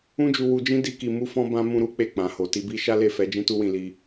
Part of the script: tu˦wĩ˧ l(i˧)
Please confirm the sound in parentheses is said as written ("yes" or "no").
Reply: yes